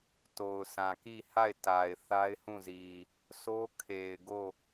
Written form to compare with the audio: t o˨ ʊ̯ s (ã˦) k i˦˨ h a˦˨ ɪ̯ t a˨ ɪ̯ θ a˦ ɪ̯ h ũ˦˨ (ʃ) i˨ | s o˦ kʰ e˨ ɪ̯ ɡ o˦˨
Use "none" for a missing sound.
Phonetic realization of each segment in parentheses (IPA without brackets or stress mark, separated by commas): ã˨, z